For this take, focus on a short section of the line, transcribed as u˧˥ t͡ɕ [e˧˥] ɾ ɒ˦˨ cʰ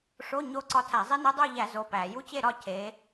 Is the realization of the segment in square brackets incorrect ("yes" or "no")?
yes